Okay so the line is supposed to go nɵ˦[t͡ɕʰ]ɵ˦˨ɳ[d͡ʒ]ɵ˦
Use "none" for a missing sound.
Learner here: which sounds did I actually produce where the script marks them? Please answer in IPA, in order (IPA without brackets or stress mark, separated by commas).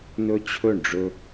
t͡ɕʰ, ɖ͡ʐ